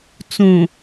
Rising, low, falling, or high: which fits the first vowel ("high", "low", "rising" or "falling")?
low